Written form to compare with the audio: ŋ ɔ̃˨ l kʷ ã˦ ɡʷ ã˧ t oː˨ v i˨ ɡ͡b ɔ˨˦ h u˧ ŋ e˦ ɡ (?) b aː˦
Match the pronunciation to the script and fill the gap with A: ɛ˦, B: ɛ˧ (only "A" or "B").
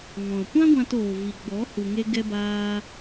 A